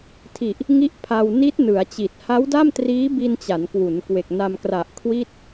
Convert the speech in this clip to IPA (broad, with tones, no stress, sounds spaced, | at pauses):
tʰ i˨˩ ʔ | ŋ i˥˩ ʔ pʰ a˧ w n i˦˥ t̚ n ɯ˩˦ a̯ t͡ɕ i˨˩ t̚ h a˦˥ w d a˥˩ m t r iː˦˥ b i˧ n t͡ɕ a˩˦ n k w u˩˦ n k w e˨˩ k̚ n a˧ m k r a˨˩ ʔ kʰ w i˥˩ t̚